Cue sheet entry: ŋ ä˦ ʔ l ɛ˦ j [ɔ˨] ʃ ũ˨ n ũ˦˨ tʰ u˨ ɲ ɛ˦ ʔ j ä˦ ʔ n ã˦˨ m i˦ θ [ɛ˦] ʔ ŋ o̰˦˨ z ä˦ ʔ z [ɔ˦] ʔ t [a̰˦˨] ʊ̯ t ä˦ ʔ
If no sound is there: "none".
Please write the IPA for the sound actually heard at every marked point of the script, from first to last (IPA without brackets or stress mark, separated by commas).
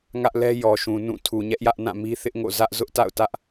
ɔ˨, ɪ˦, ʊ˦, a̰˦˨